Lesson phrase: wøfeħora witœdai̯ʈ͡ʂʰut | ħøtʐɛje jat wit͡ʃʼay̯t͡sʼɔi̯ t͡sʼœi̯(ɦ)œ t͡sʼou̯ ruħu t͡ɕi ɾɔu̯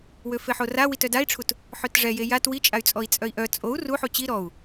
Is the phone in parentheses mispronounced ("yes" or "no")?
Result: yes